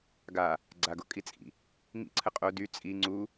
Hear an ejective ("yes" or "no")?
yes